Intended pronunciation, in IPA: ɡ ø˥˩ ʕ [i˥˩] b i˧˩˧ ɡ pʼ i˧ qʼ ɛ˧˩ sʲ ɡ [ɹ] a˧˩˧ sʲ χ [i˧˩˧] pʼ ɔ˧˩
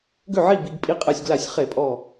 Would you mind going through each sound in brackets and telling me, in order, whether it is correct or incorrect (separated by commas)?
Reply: correct, incorrect, incorrect